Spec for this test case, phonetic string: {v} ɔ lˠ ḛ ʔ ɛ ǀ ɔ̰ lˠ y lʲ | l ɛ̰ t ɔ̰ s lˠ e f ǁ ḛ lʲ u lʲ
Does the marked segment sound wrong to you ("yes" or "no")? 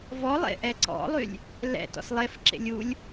no